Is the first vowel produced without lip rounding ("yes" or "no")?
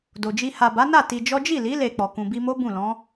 no